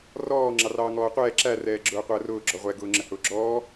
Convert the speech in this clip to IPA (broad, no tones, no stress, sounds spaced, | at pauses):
r ɔː ŋ͡ǁ ɑ r ɑː ŋ ɔː qʷ ɛː ǁ æ r ɛː ɡ͡ǁ ʊː qʷ əː r ʊː ɡ͡ǁ ɔ ʁʷ ɛ ɡ ʊː ŋ͡ǁ ə h ʊː ɡ͡ǁ ɔː